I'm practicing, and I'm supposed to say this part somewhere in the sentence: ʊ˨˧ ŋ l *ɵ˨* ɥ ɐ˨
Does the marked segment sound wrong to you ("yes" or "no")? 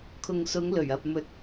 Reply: yes